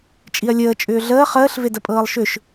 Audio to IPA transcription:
t͡ʃʼ i ɐ̯ lʲ əː t͡ʃʼ ʏː ɮ əː χ əː ɬ v e d ə pʼ ɤː lˠ ʃ ʏ ʃ

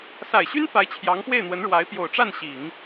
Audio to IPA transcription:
s a˨˩ ɪ̯ ɕ y˥ n f a˧˥ ɪ̯ t͡ɕʰ j ɑ˧˥ ŋ p w e˥˩ ɪ̯ n̪ w ə˧˥ n ɻ w a˧˥ ɪ̯ p j o˨˩ ʊ̯ ʈ͡ʂ a˥˩ n ɕ i˨˩˦ ŋ

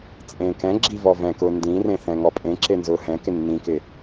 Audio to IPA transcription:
t͡sʼ ẽː k ɛ̃ ɡ͡ǁ i v ɔ v ɛ̃ k ʊː n d ĩ r ẽ θ ɛ̃ ŋ ɔ pʼ ẽ ǁ e n z ʊː h ɛ̃ k ɪ nː ĩ k ɪ

